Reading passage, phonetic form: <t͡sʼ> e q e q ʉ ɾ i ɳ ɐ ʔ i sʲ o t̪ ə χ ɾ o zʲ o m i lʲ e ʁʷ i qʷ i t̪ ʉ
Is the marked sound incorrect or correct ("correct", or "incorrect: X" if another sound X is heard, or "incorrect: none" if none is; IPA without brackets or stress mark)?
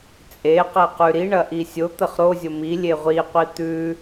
correct